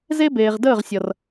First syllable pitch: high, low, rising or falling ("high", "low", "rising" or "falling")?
high